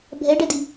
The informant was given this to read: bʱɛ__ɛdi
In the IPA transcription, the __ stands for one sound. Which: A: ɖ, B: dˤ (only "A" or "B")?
A